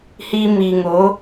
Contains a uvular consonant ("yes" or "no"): no